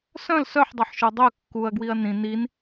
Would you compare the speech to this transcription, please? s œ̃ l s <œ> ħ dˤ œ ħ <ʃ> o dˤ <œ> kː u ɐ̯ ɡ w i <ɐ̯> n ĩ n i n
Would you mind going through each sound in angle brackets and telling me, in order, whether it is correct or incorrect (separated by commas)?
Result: correct, correct, correct, correct